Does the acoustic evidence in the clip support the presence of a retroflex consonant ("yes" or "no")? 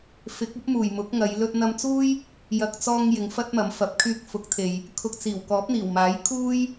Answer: no